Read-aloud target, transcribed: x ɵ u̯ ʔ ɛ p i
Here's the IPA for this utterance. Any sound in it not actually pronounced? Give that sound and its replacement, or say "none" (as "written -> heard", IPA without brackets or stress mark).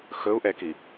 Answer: p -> k